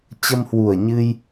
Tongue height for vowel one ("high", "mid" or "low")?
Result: mid